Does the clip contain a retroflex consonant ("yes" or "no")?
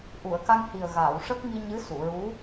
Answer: yes